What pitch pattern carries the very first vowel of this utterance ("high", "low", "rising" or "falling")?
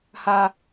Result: low